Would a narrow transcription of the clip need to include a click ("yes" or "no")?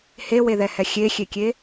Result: no